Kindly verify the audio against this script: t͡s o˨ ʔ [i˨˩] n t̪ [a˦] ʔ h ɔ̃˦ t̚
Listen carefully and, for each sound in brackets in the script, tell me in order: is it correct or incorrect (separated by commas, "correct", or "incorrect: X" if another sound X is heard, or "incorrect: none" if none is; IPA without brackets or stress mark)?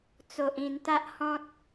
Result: incorrect: ĩ˨˩, correct